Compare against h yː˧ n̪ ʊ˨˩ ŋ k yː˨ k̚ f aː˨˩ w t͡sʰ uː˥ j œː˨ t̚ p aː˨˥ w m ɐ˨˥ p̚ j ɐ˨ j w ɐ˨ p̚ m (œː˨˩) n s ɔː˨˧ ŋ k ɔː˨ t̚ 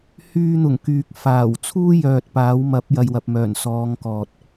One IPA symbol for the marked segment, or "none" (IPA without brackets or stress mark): œː˨˩